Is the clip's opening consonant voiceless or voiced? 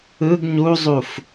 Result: voiced